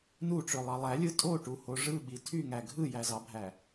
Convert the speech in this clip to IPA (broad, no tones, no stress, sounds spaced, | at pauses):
n u ʈ͡ʂ ø lˠ ɑ lˠ æ lʲ ɯ tʼ o ʈ u h o ʐ ɯ ɓ i tʰ y ŋ æ ɡʱ ɯ j æ z ɑ bʱ æ